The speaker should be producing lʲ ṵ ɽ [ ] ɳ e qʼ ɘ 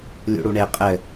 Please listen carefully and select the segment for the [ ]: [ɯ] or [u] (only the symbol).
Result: u